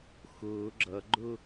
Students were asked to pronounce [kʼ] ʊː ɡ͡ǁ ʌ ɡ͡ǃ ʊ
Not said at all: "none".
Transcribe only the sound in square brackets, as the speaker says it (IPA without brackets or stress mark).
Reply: x